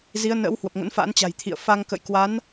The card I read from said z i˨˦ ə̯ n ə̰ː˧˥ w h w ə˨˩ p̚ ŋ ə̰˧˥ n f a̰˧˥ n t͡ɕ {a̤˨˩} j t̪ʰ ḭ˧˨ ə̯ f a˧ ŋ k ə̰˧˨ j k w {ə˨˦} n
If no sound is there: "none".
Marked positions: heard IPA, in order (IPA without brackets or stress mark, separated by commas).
a̤˨˩, a˨˦